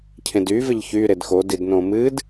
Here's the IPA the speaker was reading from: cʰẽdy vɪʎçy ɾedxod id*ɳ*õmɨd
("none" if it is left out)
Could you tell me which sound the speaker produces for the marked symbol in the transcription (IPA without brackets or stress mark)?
n